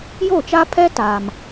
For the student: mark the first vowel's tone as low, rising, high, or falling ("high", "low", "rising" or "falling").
falling